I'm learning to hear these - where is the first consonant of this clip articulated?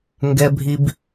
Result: velum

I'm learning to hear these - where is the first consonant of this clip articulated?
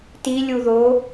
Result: tongue tip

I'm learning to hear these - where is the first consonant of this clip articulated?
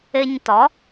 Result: palate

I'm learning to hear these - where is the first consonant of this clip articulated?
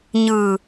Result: palate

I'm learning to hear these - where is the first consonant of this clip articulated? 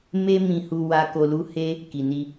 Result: lips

